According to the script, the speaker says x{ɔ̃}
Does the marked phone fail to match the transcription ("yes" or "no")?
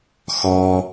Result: yes